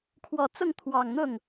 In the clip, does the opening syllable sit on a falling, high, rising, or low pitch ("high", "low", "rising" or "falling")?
low